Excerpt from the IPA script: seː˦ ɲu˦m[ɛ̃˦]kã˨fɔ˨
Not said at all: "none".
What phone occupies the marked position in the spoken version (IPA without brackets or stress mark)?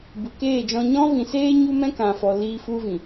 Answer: ɛ̃˦